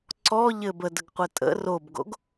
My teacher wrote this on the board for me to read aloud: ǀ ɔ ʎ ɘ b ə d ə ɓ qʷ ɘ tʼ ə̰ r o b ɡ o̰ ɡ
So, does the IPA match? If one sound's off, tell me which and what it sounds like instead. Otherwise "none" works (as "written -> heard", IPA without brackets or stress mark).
ɓ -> ɡ